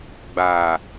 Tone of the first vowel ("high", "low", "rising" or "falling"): low